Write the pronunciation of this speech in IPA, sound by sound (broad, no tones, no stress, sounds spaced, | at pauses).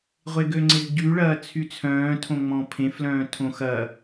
ʁʷ e ɡ ø ŋ͡ǀ ɪ z ɟ y ɭ ɐː t͡sʰ y t͡sʰ œ̃ː tʰ õ ŋ͡m ɔ̃ pʰ ẽ f l œ̃ː tʰ õ x ɐ